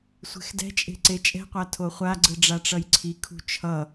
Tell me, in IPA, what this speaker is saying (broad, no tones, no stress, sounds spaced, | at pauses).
sʷ e̤ x d ɛ̤ t͡ʃʼ e̤ ǀ e t͡ʃʼ ɛ̤ qʷ a tʰ o χʷ a ɡ͡ǀ ɯ ɖ͡ʐ a ʈ͡ʂ ʌ j ǀʰ i kʰ ṳ t͡ʃʰ ʌ